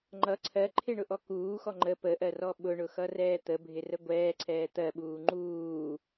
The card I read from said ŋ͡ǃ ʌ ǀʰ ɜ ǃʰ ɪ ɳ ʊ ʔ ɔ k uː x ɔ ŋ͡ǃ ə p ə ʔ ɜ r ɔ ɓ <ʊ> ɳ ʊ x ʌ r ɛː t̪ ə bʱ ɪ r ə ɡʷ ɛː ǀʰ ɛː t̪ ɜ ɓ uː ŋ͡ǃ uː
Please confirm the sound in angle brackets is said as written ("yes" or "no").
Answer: yes